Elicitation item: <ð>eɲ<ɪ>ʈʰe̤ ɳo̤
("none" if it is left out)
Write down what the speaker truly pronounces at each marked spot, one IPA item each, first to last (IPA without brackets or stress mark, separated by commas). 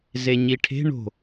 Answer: z, i